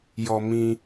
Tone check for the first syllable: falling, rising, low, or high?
high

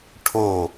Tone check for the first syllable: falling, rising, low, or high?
falling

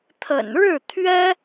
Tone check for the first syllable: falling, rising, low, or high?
low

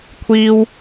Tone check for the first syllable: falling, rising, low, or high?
high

